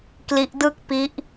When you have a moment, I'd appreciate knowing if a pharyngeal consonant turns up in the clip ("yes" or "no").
no